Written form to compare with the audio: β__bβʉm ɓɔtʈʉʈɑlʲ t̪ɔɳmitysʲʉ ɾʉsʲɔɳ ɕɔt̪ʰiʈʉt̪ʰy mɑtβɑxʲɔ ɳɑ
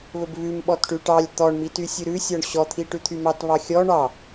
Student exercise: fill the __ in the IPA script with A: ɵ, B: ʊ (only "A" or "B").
A